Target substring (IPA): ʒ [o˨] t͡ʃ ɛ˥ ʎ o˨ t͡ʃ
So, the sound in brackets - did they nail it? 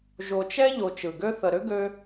yes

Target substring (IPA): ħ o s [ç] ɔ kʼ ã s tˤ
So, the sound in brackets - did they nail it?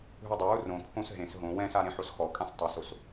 no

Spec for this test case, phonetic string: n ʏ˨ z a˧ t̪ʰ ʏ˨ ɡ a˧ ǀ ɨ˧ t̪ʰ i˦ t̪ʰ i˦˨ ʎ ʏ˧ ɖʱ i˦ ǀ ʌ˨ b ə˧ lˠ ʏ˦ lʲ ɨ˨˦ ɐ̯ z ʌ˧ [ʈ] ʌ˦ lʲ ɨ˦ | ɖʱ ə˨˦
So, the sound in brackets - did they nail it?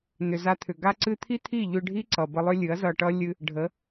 yes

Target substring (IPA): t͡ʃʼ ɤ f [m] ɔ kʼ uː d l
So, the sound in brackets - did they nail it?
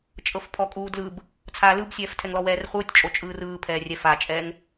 no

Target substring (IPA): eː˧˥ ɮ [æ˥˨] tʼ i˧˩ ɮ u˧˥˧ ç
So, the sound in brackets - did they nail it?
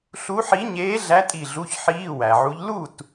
no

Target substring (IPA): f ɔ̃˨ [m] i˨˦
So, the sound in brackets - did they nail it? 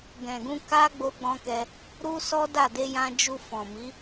yes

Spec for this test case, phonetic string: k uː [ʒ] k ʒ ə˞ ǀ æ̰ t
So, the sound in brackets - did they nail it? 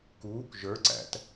no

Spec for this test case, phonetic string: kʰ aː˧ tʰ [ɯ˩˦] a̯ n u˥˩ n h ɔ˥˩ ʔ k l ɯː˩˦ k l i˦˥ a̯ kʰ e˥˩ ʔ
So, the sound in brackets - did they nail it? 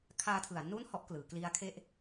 yes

